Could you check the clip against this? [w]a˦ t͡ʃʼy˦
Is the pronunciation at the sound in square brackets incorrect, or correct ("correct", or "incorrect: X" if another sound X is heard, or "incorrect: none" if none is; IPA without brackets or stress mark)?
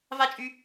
incorrect: v